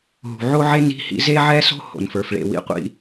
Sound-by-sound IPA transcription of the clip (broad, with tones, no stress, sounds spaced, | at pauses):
ɦ ṳ˩ ʕ o˥ ʕ e˥ n i̤˥ h ḭ˥ z e˥ ʕ ɛ˥ s o̤˥ h o̰˩ n f ə˞˩ f ɭ ḛ˩ w ḭ˥ qʷ ḭ˥